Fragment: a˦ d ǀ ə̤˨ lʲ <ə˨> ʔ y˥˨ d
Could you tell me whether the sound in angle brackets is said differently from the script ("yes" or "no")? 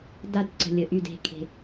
no